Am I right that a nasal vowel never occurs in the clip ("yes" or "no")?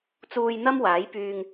yes